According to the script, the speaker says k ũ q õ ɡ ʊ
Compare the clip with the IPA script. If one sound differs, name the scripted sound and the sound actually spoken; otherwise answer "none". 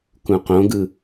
ʊ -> ɯ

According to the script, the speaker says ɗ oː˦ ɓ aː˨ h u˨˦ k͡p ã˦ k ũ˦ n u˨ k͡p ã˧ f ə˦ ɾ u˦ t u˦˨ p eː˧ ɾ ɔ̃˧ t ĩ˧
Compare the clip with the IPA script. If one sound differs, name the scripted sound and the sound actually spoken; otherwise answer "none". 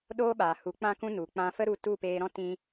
ɔ̃˧ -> ɔ̃˦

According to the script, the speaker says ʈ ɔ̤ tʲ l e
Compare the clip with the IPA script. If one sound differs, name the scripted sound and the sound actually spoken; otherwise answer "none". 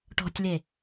none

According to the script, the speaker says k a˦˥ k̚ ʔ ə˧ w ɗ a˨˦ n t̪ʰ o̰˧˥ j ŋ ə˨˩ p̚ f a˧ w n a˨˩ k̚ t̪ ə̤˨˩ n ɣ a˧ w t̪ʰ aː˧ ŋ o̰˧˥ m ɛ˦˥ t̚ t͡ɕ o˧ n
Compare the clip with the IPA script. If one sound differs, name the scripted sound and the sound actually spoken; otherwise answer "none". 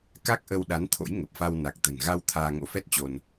m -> f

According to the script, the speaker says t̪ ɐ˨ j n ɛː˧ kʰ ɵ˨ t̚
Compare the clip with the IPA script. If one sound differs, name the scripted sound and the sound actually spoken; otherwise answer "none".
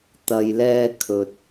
n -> l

